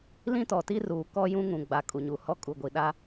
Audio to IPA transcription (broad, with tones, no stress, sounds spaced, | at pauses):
l ĩ˦ t ɔ˨ t i˦ r uː˨ k ɔ˦ j ũ˦ ŋ ũ˨ ɡ͡b a˨ kʼ u˨ ɲ u˨ h ɔ˦ kʼ u˨ ɡʷ i˨ ɗ a˦